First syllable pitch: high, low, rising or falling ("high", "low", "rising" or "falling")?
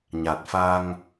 low